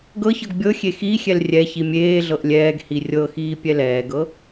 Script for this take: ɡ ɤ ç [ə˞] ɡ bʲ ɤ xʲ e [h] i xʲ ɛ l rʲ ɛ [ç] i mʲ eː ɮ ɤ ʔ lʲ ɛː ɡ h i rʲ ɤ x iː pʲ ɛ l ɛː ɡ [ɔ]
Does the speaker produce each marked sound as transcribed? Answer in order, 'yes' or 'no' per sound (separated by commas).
no, no, yes, no